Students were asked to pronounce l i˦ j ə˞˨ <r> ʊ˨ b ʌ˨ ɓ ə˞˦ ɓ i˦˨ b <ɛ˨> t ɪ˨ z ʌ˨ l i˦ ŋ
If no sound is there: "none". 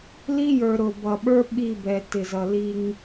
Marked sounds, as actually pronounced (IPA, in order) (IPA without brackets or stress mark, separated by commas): ɾ, ɛ˨